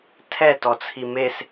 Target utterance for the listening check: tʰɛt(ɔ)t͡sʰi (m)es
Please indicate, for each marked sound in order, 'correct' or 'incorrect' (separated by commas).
correct, correct